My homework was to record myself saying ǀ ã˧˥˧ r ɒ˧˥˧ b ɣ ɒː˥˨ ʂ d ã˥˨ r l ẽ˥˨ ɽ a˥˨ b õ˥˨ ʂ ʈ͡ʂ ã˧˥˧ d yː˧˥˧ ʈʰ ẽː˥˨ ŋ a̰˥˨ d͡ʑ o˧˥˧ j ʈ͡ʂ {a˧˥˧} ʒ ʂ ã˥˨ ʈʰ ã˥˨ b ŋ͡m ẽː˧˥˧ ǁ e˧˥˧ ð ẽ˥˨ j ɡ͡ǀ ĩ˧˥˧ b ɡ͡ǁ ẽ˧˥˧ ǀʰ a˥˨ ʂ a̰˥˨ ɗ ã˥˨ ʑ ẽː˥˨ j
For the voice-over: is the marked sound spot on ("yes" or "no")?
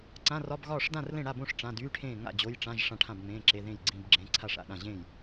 no